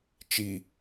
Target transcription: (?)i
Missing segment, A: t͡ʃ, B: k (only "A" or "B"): A